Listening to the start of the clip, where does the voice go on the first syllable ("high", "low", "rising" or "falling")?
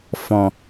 low